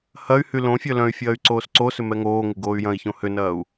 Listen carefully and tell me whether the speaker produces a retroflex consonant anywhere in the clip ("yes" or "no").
no